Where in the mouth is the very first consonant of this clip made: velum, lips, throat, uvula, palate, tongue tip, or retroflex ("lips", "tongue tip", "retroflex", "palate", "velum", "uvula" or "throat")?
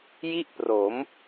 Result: palate